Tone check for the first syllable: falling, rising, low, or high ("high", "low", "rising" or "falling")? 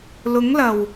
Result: rising